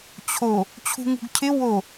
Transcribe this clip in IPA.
t͡ɕʰo | t͡ɕʰṳŋṳɡcʰɪ wo

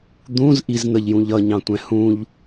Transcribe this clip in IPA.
d̪ũz ʔizn̪əʎjũʎ ʌɲɑ̃tʷɛ̃ hũʎ

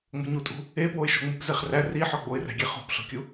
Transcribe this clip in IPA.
ŋ͡mo̤ɲutʼṳ | epwoɪ̯ ʃoŋ͡mup zeχræ ri ħɒɡ͡boɪ̯ræ̤ɡʲe χo̤pɬo̤kʲu

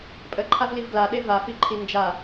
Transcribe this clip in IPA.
pʼəǃʰavliv ɡlaɗe vafiǃʰi nd͡ʒa

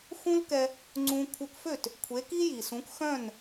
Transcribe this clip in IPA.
xũ˥lkɛ˧ | ŋ͡ǀũ˧ kʷʰœ˧kfø˥˩t | kʷʰe˩˥ki˥ji˩sũ˩˥k xœ̃˥˩n

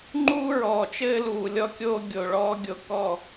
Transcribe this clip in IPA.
ŋ͡ǃuː˦ɹɔː˨t͡ʃɘː˦luː˨ lʲɔ˦kʲoː˦ ɡʲo˨ɭɔː˦ ɡʲo˨ kɔ˦˨

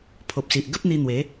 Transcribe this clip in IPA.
pʰo˨p̚si˨ʔ ɡə˦p̚n̪i˧ n̪we˨˦

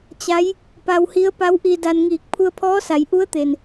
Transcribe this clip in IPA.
t͡ɕa˧˥j | pa˧whi˧˥ə̯pa˧˥w ʔi˧da˧n ŋiː˧˩k̚pʰu˧ə̯pʰɔː˧˥sa˩˧j ʔu˧˥ə̯t̪e˩n

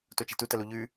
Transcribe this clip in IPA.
tot͡ʃe̤tutɐ luʎʉ

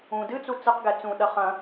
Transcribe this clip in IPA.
ũ dɨt͡su t͡sɨqɡɛ t͡sũɗɐ χɐ̃

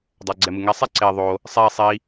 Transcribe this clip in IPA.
dˤaɡ͡ǀɛmɯŋɛ sˤɛǀe ðˤo | sˤi sˤi

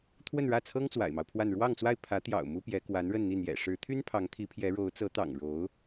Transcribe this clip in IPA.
t̪ʰwə˥˧nɻä˥˩t͡sʰɤ˥ŋ t͡swa̰˨˩ɪ̯mɑ˦ʊ̯pʰwa˥˧n ɻwɑ˥˧ŋt͡swa˥˩ɪ̯ pʰä˧˥t̪jɑ̰˨˩ʊ̯ mu˥pjɛ˧˥ kwa˧˥nɻə˥˧nn̪i˥˩ n̪jɛ̰˨˩ʂɻ̩˧˥ t̪ʰy˥n pʰɑ˧˥ŋt̪ʰi˧˥pʰjɛ˧˥ ɻo˧˥ʊ̯ t͡sɤ˧˥t̪ɑ̰˨˩ŋ ɻo˧˥ʊ̯

